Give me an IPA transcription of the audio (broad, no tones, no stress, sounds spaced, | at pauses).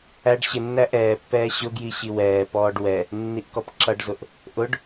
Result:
æ ɖ ɕ ɪ nː æ ʔ ɛː pː ɛː ɕ ʊ ɡ j i ɕ i w ɛː p ɔː ɖ w ɛ | nː i ʔ k ɔ p ǁ ʌ ɖ z ʊ ʔ | ʔ ʊ ɖ